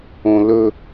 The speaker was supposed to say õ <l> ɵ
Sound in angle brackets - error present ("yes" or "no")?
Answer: no